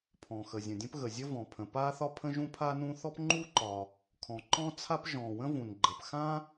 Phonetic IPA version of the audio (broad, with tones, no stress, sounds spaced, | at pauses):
pʰ ɔ̃˩ x ə˩ zʲ ə̃˩ dʲ ə̃˥ p ɣ ə˩ zʲ ə˥ v ɔ̃˩ pʰ ə̃˩ p a˥ θ ɒ˥ pʰ ə̃˥ ʒ ũ˥ pʰ a˥ n ũ˥ θ ɔ˥ p ŋ͡ǃ u˥ ǃ ɒ˩ | kʰ ɔ̃˩ ǃ ɔ̃˥ t͡sʰ a˥ p ʒ ɔ̃˩ w ə̃˥ v ũ˩ n ɡ͡ǃ ə˩ p x ã˥